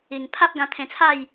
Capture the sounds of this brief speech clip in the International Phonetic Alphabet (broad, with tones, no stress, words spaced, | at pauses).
i˨˩ŋ pʰa˦p̚ɡã˧t̪ʰẽ˧t͡sʰa˥˧j